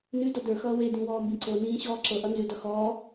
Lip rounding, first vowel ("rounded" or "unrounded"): rounded